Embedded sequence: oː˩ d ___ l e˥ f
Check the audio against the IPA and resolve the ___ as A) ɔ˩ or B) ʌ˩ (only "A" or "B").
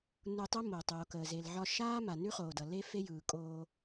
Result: B